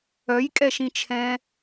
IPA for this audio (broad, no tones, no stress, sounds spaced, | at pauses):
œ j kʼ ɛ ʃ ĩ t͡ʃʰ ɛ̃